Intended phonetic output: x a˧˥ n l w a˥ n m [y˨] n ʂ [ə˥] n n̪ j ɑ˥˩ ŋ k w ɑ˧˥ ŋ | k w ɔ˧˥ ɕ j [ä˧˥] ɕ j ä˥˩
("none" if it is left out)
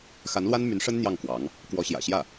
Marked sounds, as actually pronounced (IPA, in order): y˧˥, ə˥, ä̰˨˩

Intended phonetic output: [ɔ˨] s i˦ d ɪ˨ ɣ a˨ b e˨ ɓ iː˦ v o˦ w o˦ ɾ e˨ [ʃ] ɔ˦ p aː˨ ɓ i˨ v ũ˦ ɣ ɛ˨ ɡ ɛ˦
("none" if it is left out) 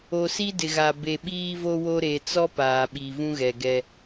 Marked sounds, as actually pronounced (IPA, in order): o˨, t͡s

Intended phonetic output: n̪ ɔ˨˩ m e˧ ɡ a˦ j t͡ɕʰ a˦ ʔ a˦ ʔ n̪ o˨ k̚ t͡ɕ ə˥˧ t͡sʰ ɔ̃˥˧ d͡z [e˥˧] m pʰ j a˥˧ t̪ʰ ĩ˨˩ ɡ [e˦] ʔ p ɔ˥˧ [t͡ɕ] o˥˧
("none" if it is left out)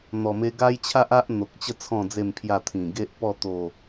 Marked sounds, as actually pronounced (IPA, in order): e˥˧, e˦, t̪

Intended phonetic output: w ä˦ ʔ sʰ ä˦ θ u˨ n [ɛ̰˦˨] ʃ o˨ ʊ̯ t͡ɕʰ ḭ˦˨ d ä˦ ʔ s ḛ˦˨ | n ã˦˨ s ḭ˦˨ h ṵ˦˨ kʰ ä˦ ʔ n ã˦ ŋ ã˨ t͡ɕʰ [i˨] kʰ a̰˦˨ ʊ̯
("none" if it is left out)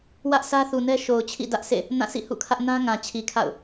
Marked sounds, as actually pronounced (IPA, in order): ɛ˦, i˨

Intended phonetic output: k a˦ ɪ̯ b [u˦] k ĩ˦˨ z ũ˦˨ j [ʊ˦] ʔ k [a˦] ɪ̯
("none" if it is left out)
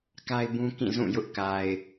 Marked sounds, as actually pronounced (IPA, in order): ũ˦, ʊ˦, a˨

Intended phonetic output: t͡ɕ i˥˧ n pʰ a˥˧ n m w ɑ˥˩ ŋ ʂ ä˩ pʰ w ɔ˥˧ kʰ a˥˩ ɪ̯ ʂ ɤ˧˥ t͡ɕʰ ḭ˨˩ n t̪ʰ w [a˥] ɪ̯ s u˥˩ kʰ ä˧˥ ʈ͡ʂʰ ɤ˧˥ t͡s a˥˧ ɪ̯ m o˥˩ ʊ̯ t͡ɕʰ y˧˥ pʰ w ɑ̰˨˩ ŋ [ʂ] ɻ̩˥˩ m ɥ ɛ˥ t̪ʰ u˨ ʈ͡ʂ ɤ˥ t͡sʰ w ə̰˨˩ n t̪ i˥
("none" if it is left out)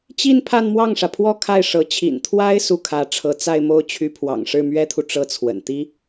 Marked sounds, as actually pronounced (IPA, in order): a˥, ʂ

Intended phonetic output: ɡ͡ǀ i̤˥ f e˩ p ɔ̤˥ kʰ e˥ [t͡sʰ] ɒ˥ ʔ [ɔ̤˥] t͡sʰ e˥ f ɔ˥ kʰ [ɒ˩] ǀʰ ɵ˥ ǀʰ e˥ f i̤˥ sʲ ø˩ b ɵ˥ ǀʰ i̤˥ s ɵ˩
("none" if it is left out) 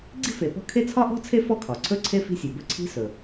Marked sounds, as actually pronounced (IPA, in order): t͡sʰ, ɔ̤˥, ɒ˩

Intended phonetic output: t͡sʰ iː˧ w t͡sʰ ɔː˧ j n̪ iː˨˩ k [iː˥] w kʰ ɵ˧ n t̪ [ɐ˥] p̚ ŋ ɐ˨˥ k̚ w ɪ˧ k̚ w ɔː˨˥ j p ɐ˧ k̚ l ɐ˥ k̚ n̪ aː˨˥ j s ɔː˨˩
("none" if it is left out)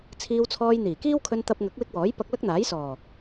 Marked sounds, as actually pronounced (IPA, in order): iː˥, ɐ˧

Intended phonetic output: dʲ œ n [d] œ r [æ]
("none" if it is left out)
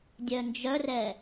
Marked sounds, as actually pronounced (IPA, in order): d͡ʒ, ɛ

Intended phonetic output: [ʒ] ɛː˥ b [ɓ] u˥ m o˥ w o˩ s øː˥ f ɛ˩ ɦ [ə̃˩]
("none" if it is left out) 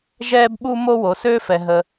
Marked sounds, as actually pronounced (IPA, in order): ʒ, ɓ, ə˩

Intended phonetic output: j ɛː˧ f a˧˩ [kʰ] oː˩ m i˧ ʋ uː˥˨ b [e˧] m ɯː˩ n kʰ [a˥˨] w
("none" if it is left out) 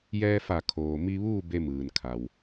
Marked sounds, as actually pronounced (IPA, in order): kʰ, e˧, a˩

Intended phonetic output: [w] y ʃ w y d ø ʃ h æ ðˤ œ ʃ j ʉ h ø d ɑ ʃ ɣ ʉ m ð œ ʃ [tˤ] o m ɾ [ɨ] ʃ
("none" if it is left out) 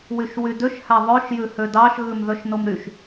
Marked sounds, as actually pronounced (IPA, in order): w, n, y

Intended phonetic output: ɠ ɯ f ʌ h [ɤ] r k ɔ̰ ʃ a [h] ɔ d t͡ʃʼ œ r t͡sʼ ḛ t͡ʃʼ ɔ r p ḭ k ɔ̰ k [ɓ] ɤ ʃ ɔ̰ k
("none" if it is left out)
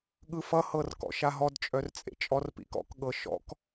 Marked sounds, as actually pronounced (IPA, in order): ɤ, ɦ, ɠ

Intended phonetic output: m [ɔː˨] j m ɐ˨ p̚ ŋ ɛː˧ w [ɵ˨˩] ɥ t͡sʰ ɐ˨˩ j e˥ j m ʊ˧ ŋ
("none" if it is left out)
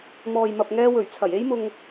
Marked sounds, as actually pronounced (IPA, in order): ɔː˨, ɵ˨˩

